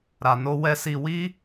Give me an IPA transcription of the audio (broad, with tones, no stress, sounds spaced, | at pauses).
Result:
ɾ a˨ n o˧ w ɛ˧ s i˨ w i˧